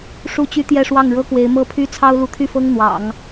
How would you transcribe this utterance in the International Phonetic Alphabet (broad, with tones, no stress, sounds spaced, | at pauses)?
ʂ u˥˩ t͡ɕ y˥ t̪ j ɛ˥˧ ʂ w ɑ˥˩ ŋ ɻ ɤ˥ k w e˧˥ ɪ̯ m ɤ˥˩ pʰ y˥ t͡sʰ ɑ˥ ʊ̯ l u˧˥ t̪ʰ y˥˩ f ɤ˥ ŋ n̪ w ɑ̰˨˩˦ ŋ